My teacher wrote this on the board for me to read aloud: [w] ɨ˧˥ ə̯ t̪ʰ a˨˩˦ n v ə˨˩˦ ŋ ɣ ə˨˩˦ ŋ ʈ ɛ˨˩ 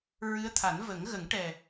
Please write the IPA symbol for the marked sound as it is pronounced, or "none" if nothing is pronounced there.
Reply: ɹ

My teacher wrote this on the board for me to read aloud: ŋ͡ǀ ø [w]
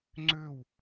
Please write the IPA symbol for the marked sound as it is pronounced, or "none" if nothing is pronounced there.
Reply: w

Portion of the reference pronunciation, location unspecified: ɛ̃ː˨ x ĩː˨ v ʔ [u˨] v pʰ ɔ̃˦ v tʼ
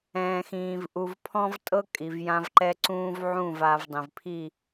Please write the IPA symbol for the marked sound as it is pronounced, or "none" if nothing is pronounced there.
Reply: u˨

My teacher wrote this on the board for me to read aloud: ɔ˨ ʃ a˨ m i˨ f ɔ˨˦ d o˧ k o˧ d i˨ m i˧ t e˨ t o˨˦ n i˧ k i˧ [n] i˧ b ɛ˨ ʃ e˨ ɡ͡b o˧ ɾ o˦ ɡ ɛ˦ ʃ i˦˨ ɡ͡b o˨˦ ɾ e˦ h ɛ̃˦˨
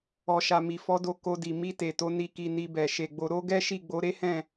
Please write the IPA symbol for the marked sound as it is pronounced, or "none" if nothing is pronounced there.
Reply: n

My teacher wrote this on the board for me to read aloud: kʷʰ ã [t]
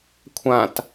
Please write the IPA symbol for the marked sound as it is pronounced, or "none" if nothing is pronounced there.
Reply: t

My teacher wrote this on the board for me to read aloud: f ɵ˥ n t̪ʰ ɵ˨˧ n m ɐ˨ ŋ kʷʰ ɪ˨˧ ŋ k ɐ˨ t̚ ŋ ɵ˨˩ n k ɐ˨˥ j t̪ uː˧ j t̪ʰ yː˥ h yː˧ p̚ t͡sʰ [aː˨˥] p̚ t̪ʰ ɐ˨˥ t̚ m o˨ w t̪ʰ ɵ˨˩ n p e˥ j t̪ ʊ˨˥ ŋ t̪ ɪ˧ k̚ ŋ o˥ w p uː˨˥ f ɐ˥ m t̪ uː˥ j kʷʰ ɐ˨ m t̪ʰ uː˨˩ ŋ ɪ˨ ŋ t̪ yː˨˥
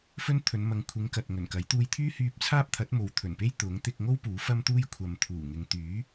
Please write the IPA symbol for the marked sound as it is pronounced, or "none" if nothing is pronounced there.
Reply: aː˥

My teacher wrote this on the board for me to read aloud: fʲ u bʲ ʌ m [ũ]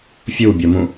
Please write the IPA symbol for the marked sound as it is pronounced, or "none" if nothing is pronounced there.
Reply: ũ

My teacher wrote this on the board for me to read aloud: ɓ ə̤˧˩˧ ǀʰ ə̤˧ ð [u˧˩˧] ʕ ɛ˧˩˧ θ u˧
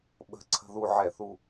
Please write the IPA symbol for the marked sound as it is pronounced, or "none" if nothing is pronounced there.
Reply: u˧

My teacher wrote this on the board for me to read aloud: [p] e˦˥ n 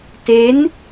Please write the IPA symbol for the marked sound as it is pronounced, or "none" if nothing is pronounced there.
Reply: t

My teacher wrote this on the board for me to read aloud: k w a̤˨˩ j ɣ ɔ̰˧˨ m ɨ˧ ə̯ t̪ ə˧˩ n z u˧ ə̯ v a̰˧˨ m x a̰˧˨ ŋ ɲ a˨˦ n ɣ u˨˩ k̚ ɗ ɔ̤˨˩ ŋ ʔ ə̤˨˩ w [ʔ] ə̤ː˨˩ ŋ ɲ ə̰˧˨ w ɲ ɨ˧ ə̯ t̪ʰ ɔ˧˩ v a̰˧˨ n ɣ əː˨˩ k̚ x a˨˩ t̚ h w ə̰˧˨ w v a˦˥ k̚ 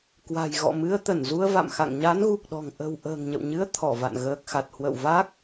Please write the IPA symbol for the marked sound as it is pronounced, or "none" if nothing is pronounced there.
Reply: ʔ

